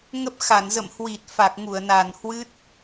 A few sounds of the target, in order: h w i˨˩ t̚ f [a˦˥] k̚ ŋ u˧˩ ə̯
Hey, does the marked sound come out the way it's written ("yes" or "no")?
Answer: no